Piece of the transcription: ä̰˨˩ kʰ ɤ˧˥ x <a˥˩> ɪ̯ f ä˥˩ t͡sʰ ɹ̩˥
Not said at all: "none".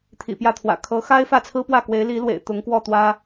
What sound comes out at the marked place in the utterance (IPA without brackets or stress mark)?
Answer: a˥